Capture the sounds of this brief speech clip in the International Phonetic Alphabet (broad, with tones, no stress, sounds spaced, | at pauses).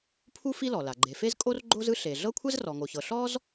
pʰ u˥ f i˥ l ɔ˩ l a˩ ɡ͡ǃ e˩ f e˥ z kʼ o˥ r ɡ͡ǃ o˥ z ɯ˥ ɬ e˩ ɮ ɤ˥ kʷʰ ɛ˥ z r ɔ˩ ŋ o˩ ç ɤ˩ ɬ ɔ˥ z